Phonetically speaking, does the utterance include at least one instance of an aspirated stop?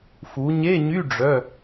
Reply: no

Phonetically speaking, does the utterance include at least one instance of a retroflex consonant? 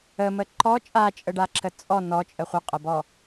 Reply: yes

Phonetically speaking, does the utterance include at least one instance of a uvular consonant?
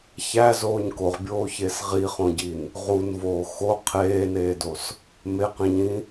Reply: yes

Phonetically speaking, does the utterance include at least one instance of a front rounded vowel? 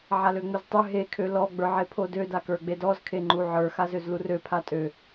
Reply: yes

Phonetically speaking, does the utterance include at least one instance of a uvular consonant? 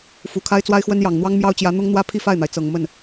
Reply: no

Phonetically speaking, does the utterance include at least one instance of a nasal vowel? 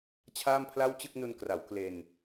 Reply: no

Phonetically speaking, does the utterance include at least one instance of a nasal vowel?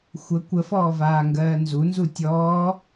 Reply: no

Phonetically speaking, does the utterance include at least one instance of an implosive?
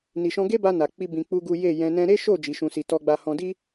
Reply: no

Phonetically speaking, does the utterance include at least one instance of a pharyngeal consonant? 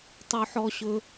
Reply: yes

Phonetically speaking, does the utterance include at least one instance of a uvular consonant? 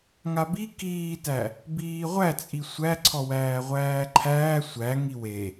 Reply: yes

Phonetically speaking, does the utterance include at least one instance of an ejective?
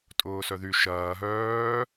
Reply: yes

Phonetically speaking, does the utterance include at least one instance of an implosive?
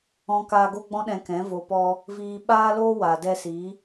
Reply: yes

